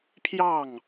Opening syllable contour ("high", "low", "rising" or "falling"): falling